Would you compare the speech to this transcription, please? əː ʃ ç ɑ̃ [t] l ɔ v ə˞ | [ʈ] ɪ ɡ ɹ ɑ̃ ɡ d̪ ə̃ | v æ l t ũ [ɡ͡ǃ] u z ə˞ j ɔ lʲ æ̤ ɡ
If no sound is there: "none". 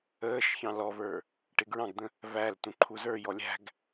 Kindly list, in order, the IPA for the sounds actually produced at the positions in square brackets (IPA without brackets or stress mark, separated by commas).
none, ʈ, ǃʰ